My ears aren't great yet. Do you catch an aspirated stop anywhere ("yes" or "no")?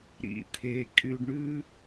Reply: yes